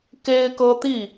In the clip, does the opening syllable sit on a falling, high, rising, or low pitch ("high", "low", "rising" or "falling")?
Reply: high